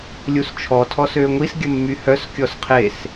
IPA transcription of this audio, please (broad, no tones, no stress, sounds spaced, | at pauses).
lʲ u s t͡ʃʰ ɔ tʰ ɔ s ø ŋʷ i s ɡʲ ə mː y h œ s kʲ ɔ s qʰ e s